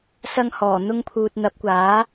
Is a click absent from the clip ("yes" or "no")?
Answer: yes